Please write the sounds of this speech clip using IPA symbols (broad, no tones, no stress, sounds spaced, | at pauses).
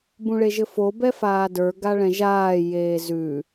b ũ ɭ e ʒ ɘ f o b ɛ f aː d ə˞ ɡ a ɭ ɛ̃ ʒ aː j eː z ʉ